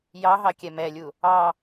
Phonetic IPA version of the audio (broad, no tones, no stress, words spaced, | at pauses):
jɑɦɑ kʲɛmɛlʲu | ɑ